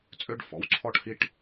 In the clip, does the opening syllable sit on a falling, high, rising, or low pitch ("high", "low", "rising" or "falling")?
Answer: high